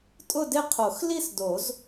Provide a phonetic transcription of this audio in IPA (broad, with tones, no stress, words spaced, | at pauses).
tʼʊ˥˧dɪ˥˧qʰo˨˩˦x li˥˧sdo˨˩˦z